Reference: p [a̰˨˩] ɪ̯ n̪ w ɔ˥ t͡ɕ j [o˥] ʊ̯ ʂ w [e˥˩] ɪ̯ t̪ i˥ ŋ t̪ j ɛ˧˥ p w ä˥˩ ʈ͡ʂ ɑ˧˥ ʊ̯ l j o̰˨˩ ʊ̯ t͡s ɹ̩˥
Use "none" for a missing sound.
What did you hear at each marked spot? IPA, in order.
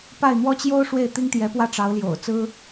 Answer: a˥˩, o˥, e˥˩

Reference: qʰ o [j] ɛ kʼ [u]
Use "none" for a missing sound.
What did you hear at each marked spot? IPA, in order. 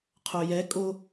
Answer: j, o

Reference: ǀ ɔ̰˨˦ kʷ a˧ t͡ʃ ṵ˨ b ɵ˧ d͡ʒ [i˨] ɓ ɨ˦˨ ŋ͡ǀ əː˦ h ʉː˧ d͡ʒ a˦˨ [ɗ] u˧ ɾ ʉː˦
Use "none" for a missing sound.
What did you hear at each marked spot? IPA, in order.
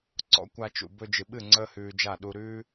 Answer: ɨ˨, ɗ

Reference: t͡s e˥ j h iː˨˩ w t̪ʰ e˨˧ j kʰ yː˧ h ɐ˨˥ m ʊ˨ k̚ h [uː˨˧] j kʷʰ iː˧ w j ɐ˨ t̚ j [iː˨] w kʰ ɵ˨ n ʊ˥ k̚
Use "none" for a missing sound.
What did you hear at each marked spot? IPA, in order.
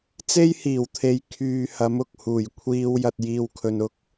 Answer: uː˨˩, iː˨

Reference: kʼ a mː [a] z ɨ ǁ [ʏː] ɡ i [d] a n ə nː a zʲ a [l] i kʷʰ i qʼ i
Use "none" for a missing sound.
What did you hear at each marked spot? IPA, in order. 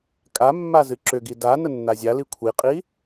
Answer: a, ʏ, d, l

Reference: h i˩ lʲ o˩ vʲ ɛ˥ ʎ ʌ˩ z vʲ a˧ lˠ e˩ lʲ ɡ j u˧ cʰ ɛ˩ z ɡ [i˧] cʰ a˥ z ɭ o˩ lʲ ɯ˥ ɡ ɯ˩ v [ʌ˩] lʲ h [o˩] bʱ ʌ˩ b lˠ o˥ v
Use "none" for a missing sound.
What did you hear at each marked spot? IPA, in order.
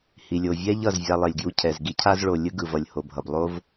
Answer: i˧, ʌ˩, o˩

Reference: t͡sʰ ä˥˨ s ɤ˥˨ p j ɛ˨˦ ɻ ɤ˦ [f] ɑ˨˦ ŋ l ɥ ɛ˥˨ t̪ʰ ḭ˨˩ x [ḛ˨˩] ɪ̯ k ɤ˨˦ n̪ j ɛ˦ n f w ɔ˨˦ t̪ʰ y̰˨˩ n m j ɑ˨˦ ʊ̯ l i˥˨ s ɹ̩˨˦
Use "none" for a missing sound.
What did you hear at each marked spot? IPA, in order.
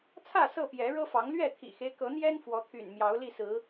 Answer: f, e˦

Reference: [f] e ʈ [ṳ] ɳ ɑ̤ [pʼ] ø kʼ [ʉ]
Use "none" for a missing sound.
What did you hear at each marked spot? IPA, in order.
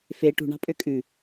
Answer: f, ṳ, pʼ, ʉ

